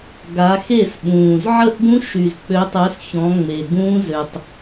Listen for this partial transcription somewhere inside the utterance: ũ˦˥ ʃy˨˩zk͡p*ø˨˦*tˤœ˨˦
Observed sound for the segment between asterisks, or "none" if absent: ø˨˦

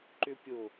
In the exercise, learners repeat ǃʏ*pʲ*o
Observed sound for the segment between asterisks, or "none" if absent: pʲ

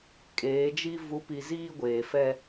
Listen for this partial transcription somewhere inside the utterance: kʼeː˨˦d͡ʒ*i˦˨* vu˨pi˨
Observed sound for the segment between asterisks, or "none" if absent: i˦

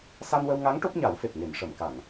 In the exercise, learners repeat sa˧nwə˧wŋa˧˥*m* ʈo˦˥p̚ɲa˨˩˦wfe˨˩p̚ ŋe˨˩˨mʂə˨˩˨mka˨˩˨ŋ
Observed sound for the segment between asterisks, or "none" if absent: ŋ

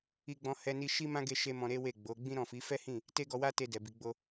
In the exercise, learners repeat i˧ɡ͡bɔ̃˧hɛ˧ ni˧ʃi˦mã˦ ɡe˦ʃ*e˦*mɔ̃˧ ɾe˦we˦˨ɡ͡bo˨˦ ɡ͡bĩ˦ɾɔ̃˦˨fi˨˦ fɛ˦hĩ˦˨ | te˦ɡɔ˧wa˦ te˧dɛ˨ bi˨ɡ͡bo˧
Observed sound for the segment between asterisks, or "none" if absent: e˦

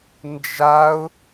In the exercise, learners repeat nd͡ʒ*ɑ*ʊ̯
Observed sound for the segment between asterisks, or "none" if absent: a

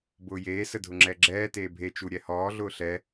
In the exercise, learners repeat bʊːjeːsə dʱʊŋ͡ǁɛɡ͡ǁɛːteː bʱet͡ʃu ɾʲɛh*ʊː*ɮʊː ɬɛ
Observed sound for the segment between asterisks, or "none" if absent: ɔː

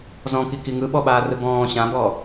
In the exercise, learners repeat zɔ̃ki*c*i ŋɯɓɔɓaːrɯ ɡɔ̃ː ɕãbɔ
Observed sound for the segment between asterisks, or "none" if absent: k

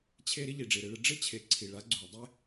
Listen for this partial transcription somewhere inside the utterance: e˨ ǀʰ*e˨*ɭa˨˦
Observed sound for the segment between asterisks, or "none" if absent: i˨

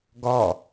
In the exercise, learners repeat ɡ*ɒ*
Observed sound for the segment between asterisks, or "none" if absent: ɒ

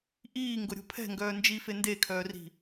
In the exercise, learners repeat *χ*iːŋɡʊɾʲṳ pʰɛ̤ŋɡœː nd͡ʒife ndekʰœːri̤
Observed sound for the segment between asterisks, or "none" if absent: ʔ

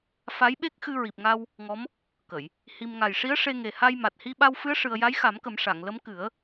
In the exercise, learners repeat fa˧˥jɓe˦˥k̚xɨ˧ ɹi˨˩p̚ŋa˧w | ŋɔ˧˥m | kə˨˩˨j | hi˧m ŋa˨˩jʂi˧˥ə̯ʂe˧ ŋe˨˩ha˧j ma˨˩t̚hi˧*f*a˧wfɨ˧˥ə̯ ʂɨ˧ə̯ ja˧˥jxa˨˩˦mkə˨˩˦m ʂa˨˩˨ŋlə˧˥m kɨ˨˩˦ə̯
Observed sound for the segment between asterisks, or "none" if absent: ɓ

